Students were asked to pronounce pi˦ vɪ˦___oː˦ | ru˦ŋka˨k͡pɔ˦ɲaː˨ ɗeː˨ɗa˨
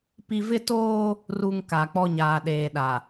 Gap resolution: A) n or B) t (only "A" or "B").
B